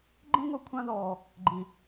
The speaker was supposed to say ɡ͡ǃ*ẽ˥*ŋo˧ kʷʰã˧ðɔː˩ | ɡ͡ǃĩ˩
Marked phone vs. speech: correct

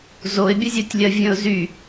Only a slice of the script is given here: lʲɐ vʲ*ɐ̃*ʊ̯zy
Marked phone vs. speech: incorrect: ə̃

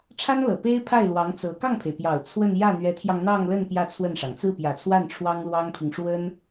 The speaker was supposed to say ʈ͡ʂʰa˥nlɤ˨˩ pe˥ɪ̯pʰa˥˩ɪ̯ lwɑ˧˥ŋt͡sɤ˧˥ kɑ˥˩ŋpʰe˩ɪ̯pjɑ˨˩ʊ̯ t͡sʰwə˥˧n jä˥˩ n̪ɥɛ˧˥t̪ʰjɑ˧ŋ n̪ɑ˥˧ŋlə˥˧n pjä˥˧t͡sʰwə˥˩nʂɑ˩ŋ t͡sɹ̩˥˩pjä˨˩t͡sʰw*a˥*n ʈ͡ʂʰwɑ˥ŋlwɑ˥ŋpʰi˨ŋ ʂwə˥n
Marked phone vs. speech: incorrect: a˥˩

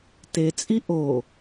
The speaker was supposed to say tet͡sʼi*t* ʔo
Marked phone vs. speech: incorrect: none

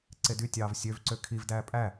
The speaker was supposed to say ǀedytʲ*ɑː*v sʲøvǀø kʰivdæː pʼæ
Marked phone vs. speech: correct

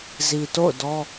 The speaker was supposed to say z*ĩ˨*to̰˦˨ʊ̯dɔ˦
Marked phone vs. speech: incorrect: i˨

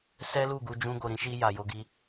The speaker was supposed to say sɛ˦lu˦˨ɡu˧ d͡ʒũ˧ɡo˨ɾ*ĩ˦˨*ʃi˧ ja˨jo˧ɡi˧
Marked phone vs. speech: incorrect: ĩ˧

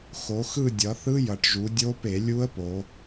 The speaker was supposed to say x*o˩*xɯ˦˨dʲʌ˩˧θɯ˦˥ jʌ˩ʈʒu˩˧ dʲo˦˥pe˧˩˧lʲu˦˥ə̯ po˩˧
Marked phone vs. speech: incorrect: o˩˧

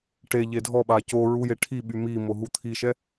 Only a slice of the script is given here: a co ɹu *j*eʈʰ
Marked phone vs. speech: correct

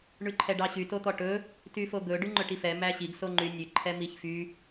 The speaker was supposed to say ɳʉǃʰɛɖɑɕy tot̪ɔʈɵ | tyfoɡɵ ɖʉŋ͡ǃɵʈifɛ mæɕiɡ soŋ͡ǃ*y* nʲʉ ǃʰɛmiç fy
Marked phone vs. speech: correct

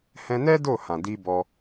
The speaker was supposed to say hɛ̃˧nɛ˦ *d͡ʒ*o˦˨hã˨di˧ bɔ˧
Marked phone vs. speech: incorrect: d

